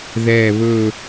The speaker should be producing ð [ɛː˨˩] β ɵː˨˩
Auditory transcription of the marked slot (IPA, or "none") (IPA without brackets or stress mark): ɛː˨˩